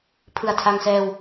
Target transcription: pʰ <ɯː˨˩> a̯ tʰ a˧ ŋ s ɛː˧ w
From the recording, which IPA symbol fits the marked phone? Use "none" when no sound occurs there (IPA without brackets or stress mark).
ɯ˨˩